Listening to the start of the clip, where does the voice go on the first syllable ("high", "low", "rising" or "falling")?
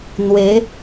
rising